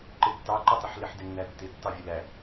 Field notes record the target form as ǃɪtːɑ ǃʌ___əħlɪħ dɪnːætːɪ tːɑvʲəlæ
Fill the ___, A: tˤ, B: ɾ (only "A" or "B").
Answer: A